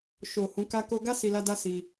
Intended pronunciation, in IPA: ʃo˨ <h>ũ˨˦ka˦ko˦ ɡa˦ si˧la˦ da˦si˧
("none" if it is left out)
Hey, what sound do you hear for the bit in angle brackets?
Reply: h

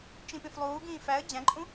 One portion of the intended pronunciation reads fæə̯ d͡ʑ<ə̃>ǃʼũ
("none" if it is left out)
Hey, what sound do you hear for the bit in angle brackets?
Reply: æ̃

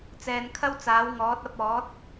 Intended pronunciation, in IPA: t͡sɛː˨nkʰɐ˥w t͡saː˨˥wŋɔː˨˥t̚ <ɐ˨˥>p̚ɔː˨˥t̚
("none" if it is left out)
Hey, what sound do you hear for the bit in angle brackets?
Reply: ɐ˨˥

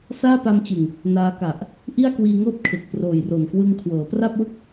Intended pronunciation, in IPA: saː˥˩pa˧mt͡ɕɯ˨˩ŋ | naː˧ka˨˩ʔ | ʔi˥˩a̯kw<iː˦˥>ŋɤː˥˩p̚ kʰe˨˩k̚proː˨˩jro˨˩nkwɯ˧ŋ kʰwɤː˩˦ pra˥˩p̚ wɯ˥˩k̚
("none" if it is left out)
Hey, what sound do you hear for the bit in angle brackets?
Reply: iː˧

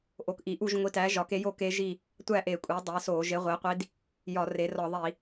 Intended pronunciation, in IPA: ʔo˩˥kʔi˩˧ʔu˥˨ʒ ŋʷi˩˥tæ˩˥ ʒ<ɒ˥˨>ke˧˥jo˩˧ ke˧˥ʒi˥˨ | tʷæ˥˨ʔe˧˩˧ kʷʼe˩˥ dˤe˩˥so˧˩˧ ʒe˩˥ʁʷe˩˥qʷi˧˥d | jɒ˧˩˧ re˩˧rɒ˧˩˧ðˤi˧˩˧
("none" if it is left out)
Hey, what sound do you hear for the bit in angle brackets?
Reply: ɒ˩˧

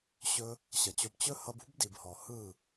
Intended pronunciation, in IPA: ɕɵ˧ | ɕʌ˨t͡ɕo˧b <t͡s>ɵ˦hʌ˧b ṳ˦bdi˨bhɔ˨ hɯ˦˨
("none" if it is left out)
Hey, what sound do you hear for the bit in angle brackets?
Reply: t͡ɕ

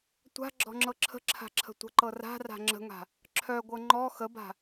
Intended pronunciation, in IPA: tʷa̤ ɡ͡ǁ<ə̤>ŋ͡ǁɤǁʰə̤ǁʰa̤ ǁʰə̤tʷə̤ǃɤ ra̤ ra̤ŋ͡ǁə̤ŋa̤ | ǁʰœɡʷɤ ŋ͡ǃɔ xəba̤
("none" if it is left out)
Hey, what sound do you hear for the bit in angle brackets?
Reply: ɔ̤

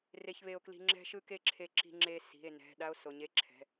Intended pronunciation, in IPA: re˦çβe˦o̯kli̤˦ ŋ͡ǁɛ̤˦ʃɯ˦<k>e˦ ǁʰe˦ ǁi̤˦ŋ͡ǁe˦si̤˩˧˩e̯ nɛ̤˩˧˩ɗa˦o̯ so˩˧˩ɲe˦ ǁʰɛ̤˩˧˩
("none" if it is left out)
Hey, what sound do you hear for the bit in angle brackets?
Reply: k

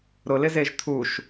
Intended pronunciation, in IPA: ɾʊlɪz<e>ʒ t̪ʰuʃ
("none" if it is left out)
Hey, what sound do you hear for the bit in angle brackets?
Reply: e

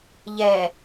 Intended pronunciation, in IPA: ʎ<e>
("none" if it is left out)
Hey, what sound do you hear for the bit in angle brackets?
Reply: ɛ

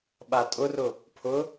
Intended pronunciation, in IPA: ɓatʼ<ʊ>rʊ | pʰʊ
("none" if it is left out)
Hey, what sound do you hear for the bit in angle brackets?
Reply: ʊ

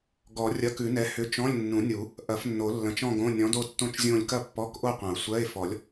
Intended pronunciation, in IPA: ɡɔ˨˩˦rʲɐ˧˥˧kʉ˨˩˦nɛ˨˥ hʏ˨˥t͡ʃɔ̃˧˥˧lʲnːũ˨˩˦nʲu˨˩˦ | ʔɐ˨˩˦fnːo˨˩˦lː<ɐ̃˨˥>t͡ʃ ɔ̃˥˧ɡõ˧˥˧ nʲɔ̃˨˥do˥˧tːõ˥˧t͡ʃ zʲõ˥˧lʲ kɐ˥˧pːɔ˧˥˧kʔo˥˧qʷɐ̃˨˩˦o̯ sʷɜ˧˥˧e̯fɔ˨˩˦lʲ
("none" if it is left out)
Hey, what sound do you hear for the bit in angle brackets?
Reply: ɐ̃˨˥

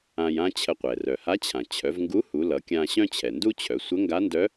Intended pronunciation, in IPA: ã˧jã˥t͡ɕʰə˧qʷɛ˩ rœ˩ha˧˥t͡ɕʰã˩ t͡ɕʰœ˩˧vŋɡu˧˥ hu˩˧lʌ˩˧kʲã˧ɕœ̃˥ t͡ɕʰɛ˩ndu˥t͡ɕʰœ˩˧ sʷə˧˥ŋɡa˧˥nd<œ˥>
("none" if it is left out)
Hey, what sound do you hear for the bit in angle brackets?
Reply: œ˧˥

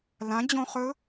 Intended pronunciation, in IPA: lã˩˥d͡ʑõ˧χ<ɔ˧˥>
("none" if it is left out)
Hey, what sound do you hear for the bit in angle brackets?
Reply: ɵ˧˥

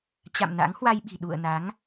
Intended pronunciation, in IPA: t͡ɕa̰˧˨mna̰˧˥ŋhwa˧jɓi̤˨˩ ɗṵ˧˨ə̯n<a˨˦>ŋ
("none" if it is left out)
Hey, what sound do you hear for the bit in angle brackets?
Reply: a˨˦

